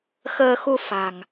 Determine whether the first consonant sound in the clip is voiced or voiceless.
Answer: voiceless